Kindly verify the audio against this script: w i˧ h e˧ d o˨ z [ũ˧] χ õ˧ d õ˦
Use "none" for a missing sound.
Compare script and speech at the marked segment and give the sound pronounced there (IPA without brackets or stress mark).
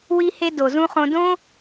ũ˧